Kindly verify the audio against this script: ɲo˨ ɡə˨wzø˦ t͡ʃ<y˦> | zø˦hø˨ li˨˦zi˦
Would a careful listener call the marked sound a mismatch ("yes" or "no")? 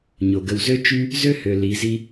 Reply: no